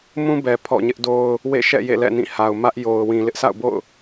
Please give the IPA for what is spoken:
m ũ˦ b ɛ˨ pʰ ɔ̰˦˨ ɲ ɪ˦ ʔ d o˦ ʊ̯ | w ḛ˦˨ ʃ ɛ̰˦˨ j ḛ˦˨ l ɛ̰˦˨ n ĩ˦˨ h a˨ ʊ̯ m ä˦ ʔ j o˨ ʊ̯ w ĩ˨ l ɪ˦ ʔ s a̰˦˨ ʊ̯ b o̰˦˨ ʊ̯

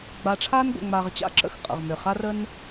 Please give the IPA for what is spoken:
ɡ͡b a˨ ʈ͡ʂʰ a˦ n ɡʷ ə̰˨ ŋ͡m a˨ ʁ t͡ɕ a̰˥ ǁ ə̰˦ x qʼ ə̰˩ ʁ m ʏ˩ χ a˦ r ə˦ n

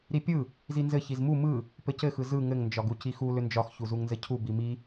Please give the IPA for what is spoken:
ɾ i pʲ ɯ | z i n z ɘ ç i z m u m ɯ | p ɘ c ɘ x ɯ z ɯ ŋ ɘ ŋ n d͡ʒ ɒ ɡ u c i x u l ʏ n d͡ʒ ɒ x ç u z u ŋ n z ɘ cʰ u b i m i

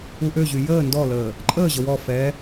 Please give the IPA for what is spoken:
u ʔ ø ʑ y j əː n d ɔ l əː | ǃʼ əː ʑ ə w ɔ f ɛ

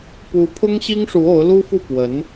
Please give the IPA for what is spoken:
p u˧˥ pʰ ʊ˥ ŋ ɕ i˥ ŋ ʂ u˧˥ o˧˥ ʊ̯ l u˥ f u˥˩ p w ə˧˥ n

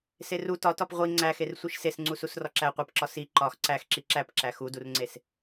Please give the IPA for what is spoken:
s e r u t ɒ t ɒ p ʁʷ i ŋ͡ǀ æ x e r sʷ i ʃ s e s ŋ͡ǀ u s u s r ɒ ǁ æ qʷ e p ǁ ɒ s i ǃ ɒ x ǀ æ x ǁ i ǁ æ p ǁ æ x u d u r ŋ͡ǀ e s

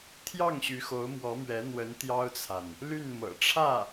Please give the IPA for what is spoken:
t̪ʰ j ɑ˥˩ ŋ ɕ y˧˥ x o˧˥ ʊ̯ m w ɔ˧˥ m ɥ ɛ˧˥ n̪ w ə˧˥ n t̪ j ɑ˥ ʊ̯ t͡sʰ a˨ n | l y˥˩ n m ɤ̰˨˩ ʈ͡ʂʰ ä˥˩

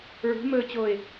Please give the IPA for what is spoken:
ɹ ṳ m ɵː t͡ɕ o ɪ̯

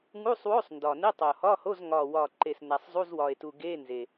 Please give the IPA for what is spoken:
ŋ u˧˥˧ sˤ w o˧˥˧ sˤ n d ɒ˨˩ n e˧˥˧ tˤ o˨˩ h ɒ˧˥˧ h o˧˥˧ z ŋ ɒ˨˩ w ɒ˨˩ ǃ e˨˩ s n æ˨˩ sˤ zˤ u˧˥˧ z w ɒ˨˩ e̯ t u˨˩ ɡ e˧˥˧ n z e˨˩

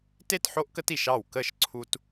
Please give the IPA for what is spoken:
t e˥˩ t ħ o˦ ʔ k ə˦ t i˧˩ ʃ ɑ˥˩ w k ə˥˩ ʃ ǀʰ u˦ t

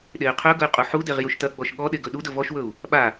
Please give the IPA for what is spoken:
ɗ e y̯ qʰ ɵ ɡ ɵ y̯ qʼ u ħ u d e ʁ j u ʃ t ɐ ɡ͡b ɔ ʃ ɠ ɔ ɗ e ɡ ɵ ɗ u d ɵ v ɔ ʃ w ɵ u̯ | ɓ a

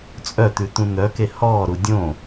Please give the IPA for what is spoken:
t͡sʼ œ t̪ ʉ t̪ ũ n̪ œ k e h ɔː ɾ u dʲ õ

